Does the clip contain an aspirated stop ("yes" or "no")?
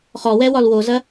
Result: no